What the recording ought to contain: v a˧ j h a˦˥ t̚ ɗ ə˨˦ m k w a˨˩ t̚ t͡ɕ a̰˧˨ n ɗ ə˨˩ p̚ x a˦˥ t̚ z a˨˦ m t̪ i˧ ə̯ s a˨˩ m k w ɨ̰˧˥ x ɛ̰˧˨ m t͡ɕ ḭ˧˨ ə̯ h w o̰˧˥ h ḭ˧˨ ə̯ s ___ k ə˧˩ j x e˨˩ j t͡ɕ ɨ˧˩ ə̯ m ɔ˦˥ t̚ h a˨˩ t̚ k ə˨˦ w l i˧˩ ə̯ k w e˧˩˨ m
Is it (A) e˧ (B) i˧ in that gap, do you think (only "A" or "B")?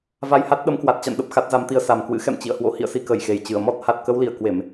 B